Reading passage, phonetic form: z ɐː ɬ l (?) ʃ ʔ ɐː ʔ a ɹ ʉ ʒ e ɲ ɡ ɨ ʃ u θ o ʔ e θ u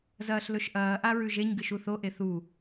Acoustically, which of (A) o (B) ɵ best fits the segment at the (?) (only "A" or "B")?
B